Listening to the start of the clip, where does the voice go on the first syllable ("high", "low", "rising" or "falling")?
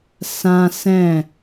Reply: high